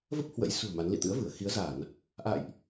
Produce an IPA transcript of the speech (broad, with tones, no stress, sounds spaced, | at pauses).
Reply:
v ə˦˥ p̚ h w ə̰˧˥ j s ṳ˨˩ ə̯ m a˨˦ n l ḭ˧˨ t̪ ɨ̰˧˥ ə̯ v ɨ˧˩ ə̯ x i˨˦ ə̯ z a˧˩˨ n | ʔ a̰˧˨ j ʔ